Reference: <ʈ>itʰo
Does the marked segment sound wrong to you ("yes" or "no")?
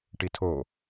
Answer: no